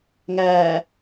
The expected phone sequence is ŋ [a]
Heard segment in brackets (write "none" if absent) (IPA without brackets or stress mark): æ